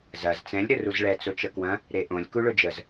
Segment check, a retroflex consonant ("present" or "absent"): present